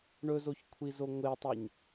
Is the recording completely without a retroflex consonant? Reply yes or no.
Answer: no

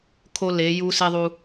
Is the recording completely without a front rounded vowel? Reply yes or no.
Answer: yes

